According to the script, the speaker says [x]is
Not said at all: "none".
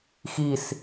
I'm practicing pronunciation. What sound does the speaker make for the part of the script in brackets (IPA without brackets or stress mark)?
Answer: x